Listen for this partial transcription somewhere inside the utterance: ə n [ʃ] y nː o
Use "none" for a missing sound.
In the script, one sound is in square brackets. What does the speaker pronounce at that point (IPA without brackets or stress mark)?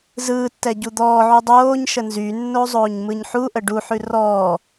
z